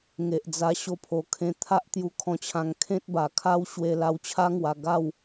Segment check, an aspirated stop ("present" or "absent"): present